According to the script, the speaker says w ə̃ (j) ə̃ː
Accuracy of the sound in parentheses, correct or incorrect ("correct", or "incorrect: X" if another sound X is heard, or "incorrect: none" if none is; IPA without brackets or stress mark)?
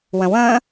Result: incorrect: w